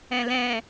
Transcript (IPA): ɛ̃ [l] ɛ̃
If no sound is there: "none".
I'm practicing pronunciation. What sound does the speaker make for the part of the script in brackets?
l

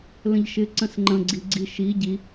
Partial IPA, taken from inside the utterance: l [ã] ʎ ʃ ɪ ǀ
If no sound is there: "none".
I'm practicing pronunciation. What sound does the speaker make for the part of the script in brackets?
ə̃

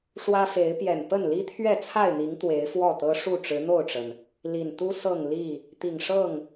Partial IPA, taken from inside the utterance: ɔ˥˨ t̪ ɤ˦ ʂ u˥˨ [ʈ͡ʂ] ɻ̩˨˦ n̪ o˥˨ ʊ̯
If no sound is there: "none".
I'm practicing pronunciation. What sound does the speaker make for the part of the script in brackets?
ʈ͡ʂ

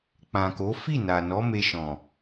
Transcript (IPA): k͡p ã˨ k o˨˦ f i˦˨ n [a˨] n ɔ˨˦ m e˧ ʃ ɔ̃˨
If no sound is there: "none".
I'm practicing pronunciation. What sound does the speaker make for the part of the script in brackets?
a˨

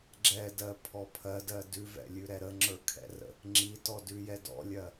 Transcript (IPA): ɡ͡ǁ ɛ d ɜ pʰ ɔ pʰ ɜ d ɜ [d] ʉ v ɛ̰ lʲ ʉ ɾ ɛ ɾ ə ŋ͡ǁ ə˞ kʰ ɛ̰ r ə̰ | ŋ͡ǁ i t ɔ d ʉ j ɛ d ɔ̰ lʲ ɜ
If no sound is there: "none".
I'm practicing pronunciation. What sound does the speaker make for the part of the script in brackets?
d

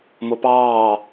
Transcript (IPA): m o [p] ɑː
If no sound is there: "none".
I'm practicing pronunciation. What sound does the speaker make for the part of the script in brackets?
p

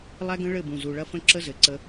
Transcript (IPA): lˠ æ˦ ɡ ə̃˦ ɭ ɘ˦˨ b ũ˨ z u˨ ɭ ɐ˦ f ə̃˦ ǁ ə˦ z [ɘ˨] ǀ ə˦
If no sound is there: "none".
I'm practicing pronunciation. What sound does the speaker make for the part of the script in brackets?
ɘ˨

